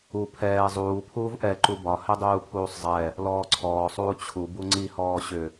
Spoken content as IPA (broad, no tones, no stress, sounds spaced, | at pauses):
u pʰ ɛː zˤ uː pʰ uː v ʔ ɛ ǃ u b ɒ h ɛ dˤ uː pʰ uː sˤ zˤ ɛ | l ɔː ǀʰ ɔː sˤ uː t͡ɕʰ u b u ŋ͡ǀ i h ɔː ɕ ʏ